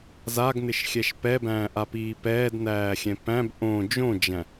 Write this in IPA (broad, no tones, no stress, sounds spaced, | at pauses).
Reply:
z a ɡ n ɪ ʃ xʲ ɛ ʃ p ɛ b æ̃ː ʔ a p iː p ɛː d n æː xʲ ɛ̃ p æ̃ b ʔ õ d͡ʒ õ d͡ʒ æ̃